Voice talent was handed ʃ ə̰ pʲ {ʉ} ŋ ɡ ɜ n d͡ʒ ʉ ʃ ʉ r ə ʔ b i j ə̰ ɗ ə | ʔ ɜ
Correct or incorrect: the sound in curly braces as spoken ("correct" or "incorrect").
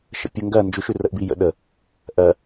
incorrect